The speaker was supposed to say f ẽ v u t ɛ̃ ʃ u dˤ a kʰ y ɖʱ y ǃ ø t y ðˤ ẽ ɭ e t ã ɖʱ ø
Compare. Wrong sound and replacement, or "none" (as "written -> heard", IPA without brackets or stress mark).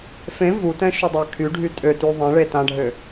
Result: ǃ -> tʼ